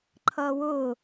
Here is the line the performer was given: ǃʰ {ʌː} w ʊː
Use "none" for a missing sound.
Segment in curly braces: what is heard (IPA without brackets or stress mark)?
ʌː